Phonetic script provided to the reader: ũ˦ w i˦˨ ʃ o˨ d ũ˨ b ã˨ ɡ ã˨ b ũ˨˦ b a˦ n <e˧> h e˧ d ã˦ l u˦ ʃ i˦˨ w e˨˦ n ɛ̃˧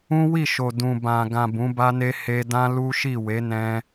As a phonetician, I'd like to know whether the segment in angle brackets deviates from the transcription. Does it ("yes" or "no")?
yes